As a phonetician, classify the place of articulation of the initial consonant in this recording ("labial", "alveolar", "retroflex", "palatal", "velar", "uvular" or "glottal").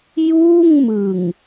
palatal